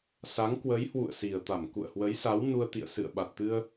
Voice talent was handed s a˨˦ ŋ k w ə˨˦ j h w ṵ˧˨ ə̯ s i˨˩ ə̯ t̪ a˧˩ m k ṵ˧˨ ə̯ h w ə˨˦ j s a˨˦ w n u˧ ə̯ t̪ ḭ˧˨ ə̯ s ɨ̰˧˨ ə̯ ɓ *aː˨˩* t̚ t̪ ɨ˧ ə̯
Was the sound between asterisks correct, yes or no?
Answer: no